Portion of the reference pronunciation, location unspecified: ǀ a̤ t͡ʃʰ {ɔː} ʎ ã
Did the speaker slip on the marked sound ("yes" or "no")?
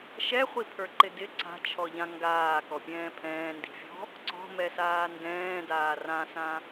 yes